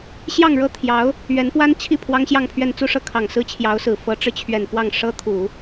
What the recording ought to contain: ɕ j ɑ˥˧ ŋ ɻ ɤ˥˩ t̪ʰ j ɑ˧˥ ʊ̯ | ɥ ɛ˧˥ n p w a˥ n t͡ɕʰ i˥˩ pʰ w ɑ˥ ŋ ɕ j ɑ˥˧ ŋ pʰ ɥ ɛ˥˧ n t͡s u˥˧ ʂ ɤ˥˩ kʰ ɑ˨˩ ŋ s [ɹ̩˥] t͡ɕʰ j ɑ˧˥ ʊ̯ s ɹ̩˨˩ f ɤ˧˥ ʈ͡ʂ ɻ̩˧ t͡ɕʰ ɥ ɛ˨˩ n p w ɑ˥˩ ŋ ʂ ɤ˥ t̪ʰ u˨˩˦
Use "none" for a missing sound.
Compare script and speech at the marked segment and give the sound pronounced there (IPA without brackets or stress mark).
ɹ̩˥